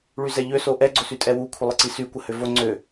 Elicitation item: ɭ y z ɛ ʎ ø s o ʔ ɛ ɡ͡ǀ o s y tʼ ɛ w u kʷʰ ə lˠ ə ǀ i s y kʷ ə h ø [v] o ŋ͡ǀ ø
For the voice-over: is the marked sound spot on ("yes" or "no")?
yes